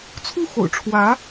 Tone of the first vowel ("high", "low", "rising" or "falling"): falling